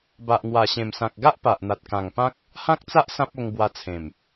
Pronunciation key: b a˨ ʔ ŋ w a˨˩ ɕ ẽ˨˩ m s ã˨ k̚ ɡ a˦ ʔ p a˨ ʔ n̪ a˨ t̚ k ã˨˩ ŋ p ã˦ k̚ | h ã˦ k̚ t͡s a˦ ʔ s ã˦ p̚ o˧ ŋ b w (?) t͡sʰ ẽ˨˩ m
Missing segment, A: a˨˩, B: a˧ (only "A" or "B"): B